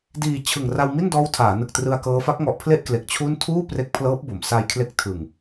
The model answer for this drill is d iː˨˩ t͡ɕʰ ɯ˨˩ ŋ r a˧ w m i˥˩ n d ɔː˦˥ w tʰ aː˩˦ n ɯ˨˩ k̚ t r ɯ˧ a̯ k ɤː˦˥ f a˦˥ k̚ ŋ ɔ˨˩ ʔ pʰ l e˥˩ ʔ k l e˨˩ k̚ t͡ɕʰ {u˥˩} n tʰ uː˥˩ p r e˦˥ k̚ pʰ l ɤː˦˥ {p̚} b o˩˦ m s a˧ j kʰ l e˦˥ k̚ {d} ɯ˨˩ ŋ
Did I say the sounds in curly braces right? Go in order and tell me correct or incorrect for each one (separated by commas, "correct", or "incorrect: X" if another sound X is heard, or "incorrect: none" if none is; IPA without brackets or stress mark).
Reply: correct, correct, incorrect: tʰ